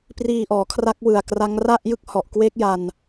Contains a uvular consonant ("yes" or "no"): no